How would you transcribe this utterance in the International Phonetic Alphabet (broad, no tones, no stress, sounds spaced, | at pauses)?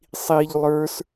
sˤ i ʎ lˠ ə˞ s